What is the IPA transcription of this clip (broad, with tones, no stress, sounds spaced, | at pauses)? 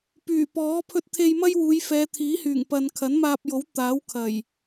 p yː˨˩ p ɔː˨˥ pʰ ɵ˧ t̚ t̪ʰ e˧ j m ɐ˥ j w uː˨˧ j f ɛː˨˧ t̪ʰ iː˨˥ h yː˨˩ ŋ p ɐ˨ n kʰ ɐ˨˥ n m aː˧ p̚ j o˨˥ w t̪ aː˨˥ w kʰ ɐ˨˩ j